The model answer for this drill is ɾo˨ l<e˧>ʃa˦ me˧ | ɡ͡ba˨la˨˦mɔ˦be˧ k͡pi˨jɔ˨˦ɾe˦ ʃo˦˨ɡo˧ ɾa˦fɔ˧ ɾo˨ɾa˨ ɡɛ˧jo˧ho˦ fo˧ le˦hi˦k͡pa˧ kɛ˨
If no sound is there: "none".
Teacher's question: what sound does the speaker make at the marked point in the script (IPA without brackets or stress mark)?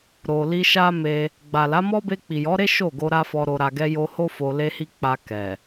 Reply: i˧